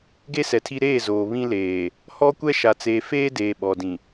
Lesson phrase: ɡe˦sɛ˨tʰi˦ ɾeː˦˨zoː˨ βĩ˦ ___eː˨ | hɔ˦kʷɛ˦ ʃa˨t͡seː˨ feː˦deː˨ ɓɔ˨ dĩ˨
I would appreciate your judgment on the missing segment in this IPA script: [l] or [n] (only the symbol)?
l